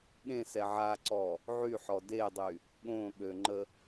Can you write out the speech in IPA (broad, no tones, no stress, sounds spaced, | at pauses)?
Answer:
ɠ ẽ s ɛ ʕ a ǀ ɔ | ʕ y ħ ɔ d e dˤ y | ɠ õ ɠ ø ŋ͡ǃ ə